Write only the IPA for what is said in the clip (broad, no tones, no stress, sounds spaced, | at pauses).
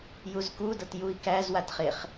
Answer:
j u z k u d ɤ t j u i̯ k æ z w a t χ e χ